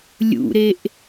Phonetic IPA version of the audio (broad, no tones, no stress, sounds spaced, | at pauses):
lʲ ṵ ɾ e ʔ